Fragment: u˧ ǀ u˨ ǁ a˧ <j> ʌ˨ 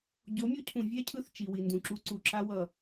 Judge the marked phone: incorrect: w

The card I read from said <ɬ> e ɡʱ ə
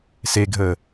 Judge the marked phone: incorrect: s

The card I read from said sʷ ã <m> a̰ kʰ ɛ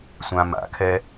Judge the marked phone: correct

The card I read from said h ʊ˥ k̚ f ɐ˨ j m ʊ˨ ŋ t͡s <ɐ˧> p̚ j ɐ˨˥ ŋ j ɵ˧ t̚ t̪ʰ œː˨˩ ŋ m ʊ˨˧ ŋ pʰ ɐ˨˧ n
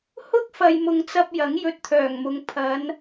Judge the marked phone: correct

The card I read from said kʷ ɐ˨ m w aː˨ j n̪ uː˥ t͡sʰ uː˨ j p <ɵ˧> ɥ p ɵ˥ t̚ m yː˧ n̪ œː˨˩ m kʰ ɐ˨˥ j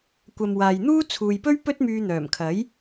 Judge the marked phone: incorrect: ɵ˥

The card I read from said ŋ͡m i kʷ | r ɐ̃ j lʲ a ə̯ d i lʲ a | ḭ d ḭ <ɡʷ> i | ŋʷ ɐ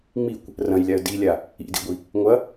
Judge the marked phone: correct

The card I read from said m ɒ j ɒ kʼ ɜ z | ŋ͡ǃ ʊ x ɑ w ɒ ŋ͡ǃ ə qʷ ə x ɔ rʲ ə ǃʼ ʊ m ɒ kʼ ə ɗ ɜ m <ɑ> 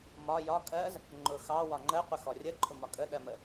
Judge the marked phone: incorrect: ə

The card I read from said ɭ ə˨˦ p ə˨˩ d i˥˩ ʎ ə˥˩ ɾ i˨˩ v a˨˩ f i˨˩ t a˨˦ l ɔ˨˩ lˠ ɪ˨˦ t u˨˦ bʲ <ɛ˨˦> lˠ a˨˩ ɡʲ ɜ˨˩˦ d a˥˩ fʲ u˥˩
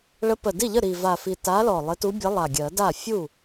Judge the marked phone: incorrect: ə˨˦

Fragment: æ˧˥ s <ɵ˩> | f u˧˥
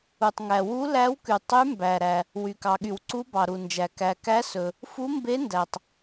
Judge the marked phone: correct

